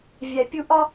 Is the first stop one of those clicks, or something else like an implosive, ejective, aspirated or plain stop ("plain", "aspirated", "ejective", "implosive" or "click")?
plain